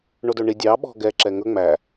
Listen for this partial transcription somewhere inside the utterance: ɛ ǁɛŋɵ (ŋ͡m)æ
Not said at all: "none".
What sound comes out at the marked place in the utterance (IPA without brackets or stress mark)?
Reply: ŋ͡m